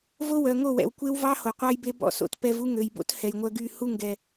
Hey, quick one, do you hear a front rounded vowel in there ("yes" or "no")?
yes